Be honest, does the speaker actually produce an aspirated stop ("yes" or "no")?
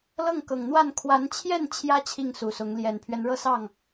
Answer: yes